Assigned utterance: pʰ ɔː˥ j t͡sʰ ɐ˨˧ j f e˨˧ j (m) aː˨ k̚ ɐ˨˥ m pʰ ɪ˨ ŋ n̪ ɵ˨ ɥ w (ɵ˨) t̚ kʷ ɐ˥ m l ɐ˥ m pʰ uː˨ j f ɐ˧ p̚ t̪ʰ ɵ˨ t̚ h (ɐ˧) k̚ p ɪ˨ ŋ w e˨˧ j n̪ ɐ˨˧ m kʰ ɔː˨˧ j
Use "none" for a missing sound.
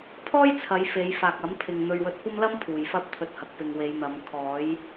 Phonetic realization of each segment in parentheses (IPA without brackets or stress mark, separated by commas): f, ɵ˨, ɐ˨